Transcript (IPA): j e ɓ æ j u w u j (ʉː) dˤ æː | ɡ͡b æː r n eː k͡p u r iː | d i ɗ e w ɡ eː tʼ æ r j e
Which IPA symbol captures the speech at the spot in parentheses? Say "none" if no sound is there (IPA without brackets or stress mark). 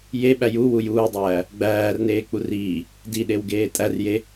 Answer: uː